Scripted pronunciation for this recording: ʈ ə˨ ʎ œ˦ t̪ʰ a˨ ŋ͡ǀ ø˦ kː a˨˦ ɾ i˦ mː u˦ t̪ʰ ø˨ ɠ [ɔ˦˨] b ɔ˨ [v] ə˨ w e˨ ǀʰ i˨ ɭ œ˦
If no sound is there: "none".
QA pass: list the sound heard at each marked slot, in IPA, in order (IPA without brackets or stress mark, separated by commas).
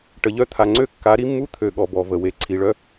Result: ɔ˨, v